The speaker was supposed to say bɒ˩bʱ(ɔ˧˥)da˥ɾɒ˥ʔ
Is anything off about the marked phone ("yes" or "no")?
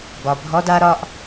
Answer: no